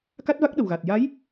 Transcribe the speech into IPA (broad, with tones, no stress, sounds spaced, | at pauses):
k a˦˥ t̚ v a˦˥ k̚ ɗ ə˨˩ w ɣ a˨˩ t̚ j a˧˥ j